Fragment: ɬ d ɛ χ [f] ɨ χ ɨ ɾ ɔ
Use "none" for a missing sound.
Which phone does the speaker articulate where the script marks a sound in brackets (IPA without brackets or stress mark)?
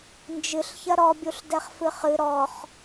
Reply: f